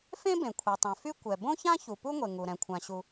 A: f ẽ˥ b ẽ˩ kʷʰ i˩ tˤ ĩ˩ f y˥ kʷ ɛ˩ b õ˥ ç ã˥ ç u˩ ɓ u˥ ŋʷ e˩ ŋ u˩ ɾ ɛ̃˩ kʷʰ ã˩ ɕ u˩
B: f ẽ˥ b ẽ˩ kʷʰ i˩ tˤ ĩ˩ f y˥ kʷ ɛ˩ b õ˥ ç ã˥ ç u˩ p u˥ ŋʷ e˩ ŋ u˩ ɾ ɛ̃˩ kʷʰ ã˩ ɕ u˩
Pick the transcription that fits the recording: B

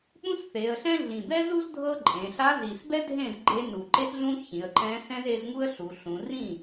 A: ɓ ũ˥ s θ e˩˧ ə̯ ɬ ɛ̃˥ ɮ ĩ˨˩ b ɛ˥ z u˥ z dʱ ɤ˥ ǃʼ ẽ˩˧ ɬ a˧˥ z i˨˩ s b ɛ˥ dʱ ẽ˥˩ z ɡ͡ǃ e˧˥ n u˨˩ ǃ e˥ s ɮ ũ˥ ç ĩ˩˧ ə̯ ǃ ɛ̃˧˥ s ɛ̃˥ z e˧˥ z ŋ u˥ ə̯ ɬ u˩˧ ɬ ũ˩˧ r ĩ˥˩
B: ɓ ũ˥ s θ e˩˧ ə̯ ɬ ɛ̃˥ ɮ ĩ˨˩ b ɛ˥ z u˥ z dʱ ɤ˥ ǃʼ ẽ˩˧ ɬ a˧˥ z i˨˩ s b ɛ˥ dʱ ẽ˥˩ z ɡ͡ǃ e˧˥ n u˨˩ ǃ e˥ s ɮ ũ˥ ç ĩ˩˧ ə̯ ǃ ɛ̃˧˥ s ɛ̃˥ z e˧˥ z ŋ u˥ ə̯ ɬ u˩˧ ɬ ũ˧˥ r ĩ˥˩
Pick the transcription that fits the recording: A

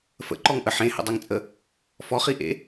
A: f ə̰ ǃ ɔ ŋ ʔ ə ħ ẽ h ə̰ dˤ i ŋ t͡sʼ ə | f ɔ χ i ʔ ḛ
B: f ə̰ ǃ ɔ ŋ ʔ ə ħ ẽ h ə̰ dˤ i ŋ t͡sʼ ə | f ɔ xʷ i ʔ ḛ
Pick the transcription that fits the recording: A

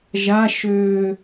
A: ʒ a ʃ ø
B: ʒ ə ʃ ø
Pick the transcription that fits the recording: A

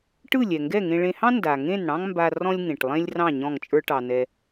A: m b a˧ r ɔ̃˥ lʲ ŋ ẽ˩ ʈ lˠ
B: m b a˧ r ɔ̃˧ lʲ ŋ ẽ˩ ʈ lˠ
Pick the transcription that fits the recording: A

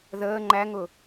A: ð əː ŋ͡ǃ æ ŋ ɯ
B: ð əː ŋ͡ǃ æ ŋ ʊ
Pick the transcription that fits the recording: B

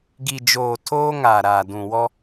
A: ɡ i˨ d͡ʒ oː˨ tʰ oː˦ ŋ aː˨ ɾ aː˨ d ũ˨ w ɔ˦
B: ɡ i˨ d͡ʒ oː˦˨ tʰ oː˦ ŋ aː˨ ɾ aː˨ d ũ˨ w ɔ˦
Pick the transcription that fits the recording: A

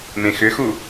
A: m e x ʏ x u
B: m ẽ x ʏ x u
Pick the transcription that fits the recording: B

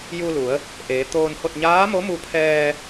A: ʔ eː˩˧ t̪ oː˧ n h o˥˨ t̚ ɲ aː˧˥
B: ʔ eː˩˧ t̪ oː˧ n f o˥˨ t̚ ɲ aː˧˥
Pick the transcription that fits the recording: A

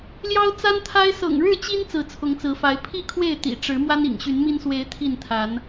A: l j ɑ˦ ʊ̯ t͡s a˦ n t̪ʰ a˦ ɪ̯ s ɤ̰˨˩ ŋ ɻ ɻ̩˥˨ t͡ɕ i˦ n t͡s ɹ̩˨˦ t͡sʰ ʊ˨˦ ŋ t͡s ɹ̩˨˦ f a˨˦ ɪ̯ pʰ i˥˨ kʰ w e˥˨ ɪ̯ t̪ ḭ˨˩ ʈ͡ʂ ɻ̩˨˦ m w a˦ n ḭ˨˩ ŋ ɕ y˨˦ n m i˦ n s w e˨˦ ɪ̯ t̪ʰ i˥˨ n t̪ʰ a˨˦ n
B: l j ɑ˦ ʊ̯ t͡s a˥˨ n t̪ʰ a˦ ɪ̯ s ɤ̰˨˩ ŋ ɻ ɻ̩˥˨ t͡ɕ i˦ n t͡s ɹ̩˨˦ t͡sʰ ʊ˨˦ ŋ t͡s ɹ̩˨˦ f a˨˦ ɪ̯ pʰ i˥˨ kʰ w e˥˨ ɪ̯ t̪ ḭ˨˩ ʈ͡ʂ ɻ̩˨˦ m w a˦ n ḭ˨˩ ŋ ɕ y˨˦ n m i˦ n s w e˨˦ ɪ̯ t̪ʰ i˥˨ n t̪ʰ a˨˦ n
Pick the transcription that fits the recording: A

